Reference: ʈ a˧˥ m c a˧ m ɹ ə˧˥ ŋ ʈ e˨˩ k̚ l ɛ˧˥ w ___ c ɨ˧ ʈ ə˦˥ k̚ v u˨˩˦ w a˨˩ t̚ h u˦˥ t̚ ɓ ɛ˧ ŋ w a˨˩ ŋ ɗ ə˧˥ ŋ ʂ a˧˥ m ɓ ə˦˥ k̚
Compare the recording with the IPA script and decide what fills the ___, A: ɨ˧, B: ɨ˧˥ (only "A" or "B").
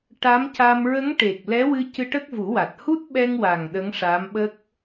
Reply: A